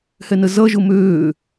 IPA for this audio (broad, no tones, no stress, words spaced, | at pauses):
hɛnəzʌ ʒʊmøː